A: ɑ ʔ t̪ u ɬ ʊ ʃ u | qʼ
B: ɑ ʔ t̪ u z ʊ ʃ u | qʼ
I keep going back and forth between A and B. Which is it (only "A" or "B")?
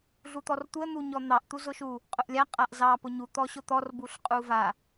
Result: B